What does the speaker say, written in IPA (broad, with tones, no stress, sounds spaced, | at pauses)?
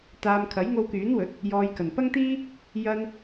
t̪ aː˧ m kʰ ɐ˨˥ j ŋ o˧ w k yː˨˥ n w ɵ˨˥ t̚ | j ɔː˧ j k ɐ˨ n p ɐ˥ ŋ t̪ iː˥ | j ɐ˥ n